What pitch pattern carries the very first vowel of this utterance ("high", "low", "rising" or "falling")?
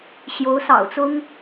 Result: rising